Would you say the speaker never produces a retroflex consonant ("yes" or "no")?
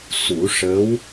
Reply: no